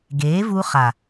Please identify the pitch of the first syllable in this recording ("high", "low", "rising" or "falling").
rising